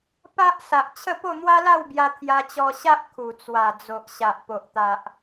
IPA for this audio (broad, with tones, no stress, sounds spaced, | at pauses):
p a˦ ʔ s a˨ ʔ t͡ɕʰ ə˥˧ p o˥˧ n̪ w a˦ l a˥˧ w b j a˧ t̪ʰ j a˧ t͡ɕ ɔ˧ ɕ a˦ ʔ kʰ u˨˩ t͡s w a˨˩ d͡z o˨ ʔ ɕ a˨ ʔ p o˨ ʔ t̪ a˨ ʔ